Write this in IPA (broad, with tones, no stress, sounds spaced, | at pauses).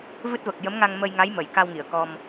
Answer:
v ɨ˦˥ t̚ v ə˨˩ k̚ j ə˧˥ m ŋ a˧ ŋ m ə˧ j ŋ a˧˥ j m ə˨˩˨ j k a˧ w ŋ i˨˩˨ ə̯ k ɔ˧ m